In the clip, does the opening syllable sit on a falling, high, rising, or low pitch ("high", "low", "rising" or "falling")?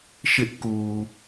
high